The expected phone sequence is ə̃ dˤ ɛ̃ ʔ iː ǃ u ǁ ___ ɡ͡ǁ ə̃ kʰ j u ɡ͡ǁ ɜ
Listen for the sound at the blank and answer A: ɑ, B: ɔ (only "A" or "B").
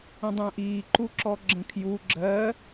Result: B